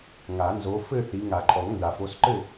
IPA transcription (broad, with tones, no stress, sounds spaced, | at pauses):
ŋ a˨˩˦ n z o˨˦ f ɘ˥˧ θ i˨˦ ŋ a˨˩˦ ǃʼ ɔ˨˩˦ ŋ n d a˨˩˦ f o˨˦ s ǃ ɘ˥˧